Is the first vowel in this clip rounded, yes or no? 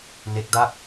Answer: no